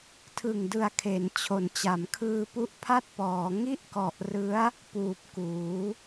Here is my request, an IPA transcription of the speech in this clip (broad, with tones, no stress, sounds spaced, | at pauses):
tʰ ɯ˨˩ ŋ d ɯ˨˩ a̯ kʰ e˩˦ n t͡ɕʰ o˩˦ n t͡ɕ a˩˦ m kʰ ɯː˧ p u˦˥ ʔ pʰ a˥˩ t̚ p ɔː˩˦ ŋ i˥˩ ʔ k ɔ˨˩ ʔ r ɯ˦˥ a̯ | p uː˨˩ p̚ k uː˩˦